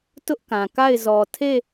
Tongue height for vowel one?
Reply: high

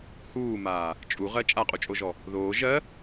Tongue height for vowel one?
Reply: high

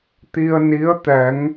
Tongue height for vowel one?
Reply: high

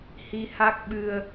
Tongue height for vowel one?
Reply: high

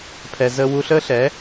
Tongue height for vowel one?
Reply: mid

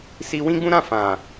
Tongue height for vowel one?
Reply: high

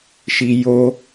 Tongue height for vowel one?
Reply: high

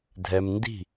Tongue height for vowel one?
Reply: mid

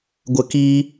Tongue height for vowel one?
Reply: mid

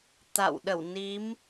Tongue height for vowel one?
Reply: low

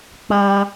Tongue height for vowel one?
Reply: low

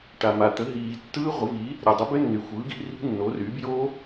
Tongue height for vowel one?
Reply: low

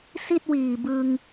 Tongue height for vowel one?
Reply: high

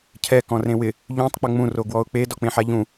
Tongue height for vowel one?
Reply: mid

